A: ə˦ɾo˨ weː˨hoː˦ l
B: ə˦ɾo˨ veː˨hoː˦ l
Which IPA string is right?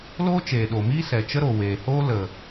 A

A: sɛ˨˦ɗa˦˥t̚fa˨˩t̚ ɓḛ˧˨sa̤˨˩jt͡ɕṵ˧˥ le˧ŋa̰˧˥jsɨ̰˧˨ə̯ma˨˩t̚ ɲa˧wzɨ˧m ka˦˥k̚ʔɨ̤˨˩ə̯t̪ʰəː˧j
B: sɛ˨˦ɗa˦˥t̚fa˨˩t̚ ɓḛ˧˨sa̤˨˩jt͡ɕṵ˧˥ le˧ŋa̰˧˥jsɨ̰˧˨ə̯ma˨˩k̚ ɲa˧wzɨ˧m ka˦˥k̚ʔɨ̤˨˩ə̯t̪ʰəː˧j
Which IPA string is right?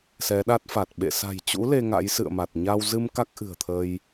A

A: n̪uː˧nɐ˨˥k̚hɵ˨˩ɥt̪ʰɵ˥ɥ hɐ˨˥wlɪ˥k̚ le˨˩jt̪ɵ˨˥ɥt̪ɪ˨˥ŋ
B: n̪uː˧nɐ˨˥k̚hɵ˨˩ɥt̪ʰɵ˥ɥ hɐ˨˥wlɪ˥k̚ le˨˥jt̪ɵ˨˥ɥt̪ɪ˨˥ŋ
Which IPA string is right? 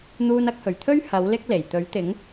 A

